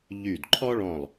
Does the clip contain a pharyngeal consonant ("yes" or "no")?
no